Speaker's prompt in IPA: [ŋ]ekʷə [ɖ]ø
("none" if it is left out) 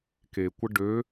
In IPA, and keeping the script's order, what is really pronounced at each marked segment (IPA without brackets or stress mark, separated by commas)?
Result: k, ɖ